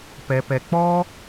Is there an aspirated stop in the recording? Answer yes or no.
no